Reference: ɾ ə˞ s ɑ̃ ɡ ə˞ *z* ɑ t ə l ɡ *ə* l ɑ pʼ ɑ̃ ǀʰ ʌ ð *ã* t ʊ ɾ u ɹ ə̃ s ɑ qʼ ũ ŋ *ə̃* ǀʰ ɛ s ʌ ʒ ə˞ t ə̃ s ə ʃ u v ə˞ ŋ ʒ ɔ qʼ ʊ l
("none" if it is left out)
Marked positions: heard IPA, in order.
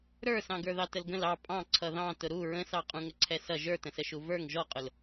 ð, ə̃, ɑ̃, ə

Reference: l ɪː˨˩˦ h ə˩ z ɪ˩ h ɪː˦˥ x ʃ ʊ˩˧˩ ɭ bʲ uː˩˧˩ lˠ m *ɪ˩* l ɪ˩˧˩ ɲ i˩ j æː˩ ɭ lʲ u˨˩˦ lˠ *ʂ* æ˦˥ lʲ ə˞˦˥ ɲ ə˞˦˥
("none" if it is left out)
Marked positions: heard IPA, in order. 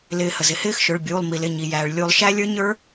i˩, ʃ

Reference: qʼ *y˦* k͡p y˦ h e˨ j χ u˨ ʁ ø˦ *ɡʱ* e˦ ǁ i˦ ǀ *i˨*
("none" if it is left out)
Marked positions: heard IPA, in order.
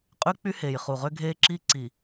y˦, ɡʱ, i˨

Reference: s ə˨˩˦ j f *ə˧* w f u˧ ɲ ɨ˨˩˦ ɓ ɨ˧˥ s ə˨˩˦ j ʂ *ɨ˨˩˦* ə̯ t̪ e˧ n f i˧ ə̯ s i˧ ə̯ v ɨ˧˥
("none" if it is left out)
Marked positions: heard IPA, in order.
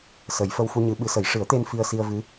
ə˧, ɨ˨˩˦

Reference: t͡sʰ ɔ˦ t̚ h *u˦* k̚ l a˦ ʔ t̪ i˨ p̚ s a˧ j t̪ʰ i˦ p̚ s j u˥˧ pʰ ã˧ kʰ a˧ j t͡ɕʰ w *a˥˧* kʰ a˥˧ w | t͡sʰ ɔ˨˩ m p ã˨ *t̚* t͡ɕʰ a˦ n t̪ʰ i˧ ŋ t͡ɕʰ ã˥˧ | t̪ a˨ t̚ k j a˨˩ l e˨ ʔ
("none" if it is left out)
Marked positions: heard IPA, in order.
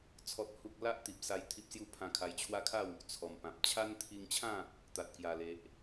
u˦, a˦, p̚

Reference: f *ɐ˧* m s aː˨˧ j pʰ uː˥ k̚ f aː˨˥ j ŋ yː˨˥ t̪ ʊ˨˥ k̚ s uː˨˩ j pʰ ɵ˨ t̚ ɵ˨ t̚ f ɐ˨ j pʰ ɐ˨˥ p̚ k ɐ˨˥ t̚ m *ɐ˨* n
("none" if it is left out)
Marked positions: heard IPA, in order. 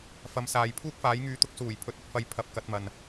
ɐ˨˥, ɐ˨

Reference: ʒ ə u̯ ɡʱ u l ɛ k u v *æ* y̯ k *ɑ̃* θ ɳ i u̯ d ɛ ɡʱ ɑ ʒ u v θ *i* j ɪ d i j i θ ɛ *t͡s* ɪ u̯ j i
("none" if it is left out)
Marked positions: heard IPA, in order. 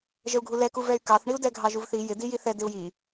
ɛ, ɑ, i, d

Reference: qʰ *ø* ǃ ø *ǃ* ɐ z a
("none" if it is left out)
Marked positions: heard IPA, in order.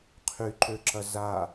y, ǁ

